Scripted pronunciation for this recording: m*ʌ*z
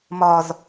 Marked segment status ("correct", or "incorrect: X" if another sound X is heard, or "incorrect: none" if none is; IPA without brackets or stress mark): incorrect: ɒ